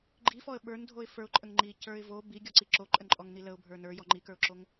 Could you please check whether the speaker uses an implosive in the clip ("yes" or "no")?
yes